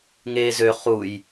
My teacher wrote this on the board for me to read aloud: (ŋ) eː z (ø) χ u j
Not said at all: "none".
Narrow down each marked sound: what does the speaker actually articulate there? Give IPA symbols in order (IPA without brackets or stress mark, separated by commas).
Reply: ŋ, ø